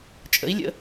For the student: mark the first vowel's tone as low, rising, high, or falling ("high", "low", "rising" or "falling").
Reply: rising